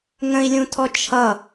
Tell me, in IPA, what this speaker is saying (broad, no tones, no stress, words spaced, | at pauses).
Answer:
ŋə̃i̯lʲũtʰɔ t͡ʃʰʌ